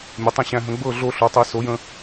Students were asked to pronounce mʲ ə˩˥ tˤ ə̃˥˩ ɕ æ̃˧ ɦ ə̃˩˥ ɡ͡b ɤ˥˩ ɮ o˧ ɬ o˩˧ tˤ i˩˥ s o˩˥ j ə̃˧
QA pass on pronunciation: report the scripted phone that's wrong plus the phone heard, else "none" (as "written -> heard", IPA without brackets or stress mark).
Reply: none